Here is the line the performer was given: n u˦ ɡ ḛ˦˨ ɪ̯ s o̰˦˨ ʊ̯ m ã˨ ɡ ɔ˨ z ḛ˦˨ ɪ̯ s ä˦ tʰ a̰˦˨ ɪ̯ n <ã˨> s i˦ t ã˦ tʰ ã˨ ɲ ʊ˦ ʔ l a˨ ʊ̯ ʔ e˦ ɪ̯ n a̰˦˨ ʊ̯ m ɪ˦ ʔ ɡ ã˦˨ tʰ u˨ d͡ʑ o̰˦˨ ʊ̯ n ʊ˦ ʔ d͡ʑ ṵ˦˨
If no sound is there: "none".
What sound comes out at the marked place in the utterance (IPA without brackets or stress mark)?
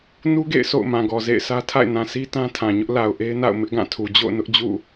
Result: ã˨